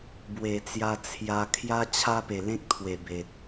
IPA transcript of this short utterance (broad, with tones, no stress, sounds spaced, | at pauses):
b w e˨˩ t͡s j a˧ t͡sʰ j a˧ kʰ j a˦ t͡ɕʰ a˦ p e˨˩ l ẽ˦ k̚ t̪ʰ w e˨˩ b e˨ t̚